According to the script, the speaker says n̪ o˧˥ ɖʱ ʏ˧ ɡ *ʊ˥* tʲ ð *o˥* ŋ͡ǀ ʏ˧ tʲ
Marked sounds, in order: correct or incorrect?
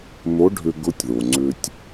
incorrect, incorrect

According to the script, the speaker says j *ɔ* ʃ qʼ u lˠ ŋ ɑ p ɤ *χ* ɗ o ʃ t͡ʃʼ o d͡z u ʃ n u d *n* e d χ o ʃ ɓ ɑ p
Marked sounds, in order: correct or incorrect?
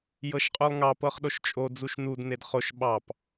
incorrect, correct, correct

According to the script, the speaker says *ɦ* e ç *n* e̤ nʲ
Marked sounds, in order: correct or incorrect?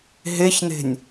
correct, correct

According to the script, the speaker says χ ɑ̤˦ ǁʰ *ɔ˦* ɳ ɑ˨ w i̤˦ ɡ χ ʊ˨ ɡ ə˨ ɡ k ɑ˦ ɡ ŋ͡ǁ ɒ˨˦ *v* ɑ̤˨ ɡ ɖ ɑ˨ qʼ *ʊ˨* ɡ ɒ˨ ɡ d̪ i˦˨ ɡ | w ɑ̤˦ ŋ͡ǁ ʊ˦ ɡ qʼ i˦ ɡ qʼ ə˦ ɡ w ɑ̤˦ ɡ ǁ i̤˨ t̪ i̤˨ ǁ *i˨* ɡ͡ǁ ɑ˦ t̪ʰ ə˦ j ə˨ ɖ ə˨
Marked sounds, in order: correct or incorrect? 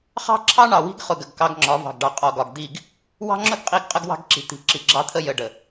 incorrect, correct, incorrect, correct

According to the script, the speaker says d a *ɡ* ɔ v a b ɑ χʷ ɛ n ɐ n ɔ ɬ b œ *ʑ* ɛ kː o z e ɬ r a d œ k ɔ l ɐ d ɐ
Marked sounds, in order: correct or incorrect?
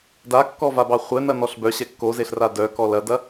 incorrect, incorrect

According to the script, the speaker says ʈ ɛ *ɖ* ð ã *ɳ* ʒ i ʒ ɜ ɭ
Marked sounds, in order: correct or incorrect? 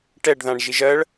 correct, correct

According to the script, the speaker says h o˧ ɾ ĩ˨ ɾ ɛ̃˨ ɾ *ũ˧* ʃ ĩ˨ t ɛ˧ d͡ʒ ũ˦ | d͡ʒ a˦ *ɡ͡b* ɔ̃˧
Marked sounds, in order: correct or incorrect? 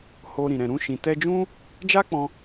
correct, incorrect

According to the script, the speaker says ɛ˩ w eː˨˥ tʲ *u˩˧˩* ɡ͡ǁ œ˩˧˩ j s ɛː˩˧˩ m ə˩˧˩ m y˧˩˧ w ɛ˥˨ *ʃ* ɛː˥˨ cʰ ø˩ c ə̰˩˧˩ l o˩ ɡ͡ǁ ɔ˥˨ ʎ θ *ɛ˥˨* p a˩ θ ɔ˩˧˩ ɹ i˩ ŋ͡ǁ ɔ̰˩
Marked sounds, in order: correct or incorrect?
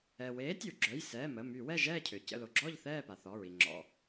incorrect, incorrect, incorrect

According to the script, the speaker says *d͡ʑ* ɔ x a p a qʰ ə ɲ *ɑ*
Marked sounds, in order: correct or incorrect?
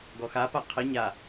incorrect, incorrect

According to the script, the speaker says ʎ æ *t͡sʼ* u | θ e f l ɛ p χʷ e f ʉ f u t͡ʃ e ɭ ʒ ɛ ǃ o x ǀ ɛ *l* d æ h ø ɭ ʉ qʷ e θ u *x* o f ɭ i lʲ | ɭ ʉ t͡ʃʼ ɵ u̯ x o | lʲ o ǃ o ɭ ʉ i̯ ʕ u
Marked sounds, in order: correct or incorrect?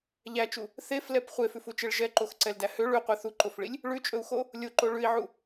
incorrect, correct, incorrect

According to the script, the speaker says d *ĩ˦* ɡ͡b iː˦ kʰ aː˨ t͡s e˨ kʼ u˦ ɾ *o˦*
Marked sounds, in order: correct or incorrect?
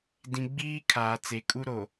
incorrect, incorrect

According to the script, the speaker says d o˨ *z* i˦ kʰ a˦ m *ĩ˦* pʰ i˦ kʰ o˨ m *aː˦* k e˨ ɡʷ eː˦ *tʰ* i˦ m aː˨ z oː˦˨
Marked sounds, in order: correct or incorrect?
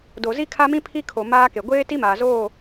correct, correct, correct, incorrect

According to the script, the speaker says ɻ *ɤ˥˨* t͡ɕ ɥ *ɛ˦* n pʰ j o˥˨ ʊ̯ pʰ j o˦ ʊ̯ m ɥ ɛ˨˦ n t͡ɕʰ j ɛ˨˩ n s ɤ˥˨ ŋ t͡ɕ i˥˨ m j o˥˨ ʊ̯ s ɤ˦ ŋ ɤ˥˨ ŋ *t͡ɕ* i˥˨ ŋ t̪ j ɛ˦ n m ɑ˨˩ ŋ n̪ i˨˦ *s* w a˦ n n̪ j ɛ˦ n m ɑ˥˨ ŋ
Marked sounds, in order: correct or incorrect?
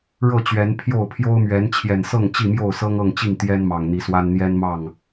correct, incorrect, correct, correct

